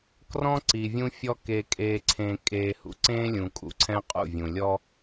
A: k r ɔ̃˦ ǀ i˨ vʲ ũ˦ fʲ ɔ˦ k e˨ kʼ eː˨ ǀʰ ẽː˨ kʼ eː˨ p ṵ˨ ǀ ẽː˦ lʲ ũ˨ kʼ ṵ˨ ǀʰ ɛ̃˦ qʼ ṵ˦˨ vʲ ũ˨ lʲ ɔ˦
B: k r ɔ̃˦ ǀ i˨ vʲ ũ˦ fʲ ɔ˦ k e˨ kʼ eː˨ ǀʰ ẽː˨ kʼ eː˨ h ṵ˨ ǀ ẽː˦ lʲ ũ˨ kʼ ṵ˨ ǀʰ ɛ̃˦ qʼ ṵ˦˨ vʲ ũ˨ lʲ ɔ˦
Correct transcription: B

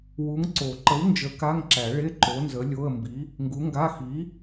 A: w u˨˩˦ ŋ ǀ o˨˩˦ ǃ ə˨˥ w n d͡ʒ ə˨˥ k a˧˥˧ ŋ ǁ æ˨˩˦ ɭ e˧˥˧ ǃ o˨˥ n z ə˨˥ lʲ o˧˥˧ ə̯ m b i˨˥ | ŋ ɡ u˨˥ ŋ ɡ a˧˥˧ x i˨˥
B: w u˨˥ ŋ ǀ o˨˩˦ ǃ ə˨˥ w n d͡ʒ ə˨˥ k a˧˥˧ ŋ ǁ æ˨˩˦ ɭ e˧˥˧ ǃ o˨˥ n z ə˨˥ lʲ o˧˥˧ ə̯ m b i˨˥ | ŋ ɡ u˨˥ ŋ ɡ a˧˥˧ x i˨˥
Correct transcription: B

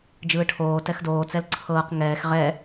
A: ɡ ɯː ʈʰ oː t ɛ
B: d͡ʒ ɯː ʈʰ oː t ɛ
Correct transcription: B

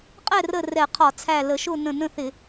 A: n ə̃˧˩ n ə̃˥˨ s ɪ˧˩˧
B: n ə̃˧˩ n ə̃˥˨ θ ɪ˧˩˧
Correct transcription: B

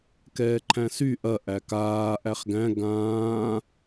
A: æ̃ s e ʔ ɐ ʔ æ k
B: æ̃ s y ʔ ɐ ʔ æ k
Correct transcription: B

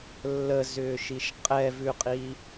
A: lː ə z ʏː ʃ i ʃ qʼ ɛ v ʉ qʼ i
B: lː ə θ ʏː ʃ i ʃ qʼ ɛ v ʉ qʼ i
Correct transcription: A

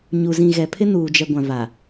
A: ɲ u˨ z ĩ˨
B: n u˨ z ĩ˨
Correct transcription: A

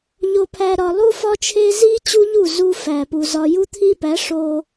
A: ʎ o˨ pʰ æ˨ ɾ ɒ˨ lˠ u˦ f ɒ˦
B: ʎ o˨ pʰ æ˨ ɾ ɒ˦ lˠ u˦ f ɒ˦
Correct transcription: A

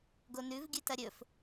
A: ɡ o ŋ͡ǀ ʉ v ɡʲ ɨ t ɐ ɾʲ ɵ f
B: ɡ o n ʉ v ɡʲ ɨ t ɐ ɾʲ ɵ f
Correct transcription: B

